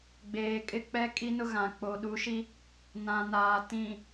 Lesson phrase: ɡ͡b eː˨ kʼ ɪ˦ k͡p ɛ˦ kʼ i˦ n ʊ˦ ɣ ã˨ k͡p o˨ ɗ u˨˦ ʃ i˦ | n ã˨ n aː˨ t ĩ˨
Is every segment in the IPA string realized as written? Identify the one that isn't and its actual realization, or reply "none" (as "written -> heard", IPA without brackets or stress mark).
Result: none